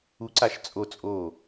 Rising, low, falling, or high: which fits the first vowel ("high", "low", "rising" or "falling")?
rising